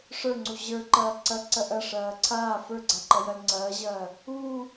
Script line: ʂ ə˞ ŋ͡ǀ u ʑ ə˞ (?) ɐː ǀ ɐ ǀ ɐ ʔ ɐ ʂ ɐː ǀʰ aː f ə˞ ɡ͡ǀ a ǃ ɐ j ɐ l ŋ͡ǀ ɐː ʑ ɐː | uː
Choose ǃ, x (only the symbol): ǃ